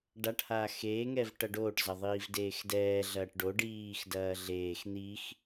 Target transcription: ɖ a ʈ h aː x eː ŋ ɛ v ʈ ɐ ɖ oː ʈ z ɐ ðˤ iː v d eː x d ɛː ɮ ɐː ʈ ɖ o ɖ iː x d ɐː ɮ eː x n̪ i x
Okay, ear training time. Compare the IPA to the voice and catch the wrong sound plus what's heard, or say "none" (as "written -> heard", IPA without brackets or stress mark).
none